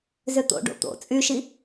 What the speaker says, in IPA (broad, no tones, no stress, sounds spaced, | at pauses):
z ʏ t̪ o̰ ɖ o̰ t̪ o̰ t͡sʼ y ʃ i